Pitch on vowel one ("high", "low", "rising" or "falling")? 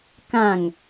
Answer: falling